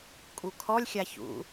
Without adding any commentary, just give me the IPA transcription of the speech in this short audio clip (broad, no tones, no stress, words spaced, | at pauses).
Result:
kʼukʰɔlʲ xʲaçṵ